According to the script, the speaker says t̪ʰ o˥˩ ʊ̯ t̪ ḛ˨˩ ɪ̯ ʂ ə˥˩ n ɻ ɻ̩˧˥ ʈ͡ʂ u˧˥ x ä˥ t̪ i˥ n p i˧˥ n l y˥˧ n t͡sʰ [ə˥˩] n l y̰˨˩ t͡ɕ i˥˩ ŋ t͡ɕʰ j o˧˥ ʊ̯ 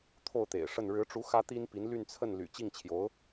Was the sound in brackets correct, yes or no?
yes